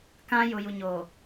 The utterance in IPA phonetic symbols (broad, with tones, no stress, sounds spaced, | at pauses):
k ã˦ j ʊ˨ j u˨ ɲ oː˨